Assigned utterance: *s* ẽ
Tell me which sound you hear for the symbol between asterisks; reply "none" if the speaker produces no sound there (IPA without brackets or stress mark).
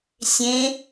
sʲ